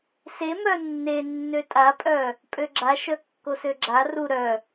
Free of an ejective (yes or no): no